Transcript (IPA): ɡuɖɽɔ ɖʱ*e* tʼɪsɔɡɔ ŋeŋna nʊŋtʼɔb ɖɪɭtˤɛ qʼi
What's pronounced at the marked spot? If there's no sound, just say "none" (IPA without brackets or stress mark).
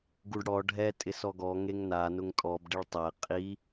ɛ